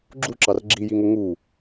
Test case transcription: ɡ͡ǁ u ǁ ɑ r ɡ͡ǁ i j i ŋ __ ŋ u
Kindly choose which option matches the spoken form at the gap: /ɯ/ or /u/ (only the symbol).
u